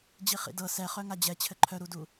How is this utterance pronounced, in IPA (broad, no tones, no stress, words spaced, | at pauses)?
d͡ʑiχḭdɤ sɛχœ ŋad͡ʑɛ t͡ɕʰɘǃʰœɾudu